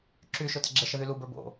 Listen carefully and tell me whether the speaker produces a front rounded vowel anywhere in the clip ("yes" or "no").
yes